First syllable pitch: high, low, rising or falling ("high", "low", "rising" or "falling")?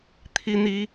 high